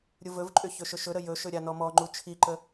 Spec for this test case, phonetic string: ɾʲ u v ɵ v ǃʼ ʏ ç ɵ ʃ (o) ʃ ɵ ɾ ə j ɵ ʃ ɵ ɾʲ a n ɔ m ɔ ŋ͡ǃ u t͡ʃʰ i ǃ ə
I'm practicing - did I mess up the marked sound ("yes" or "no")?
yes